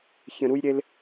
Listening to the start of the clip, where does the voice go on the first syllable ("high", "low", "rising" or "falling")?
low